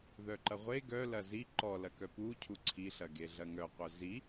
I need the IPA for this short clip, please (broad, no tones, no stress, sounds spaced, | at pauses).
ð œ ǃ ɐ ʁʷ e ɡ œ l ɐ z i ǃ ɔ l ɐ k œ p u cʰ u ǀʰ i ɬ ɐ ɡ e ɮ ɐ ŋ œ qʷ œ z i